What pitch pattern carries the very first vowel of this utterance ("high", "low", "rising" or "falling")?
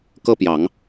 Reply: high